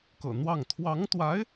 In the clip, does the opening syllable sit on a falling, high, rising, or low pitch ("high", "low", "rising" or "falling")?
low